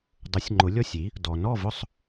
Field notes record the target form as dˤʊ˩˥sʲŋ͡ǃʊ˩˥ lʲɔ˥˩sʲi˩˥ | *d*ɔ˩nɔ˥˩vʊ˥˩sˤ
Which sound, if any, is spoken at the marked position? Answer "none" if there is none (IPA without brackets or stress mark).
d